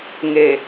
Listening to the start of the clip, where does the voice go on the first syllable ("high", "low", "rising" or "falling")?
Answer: low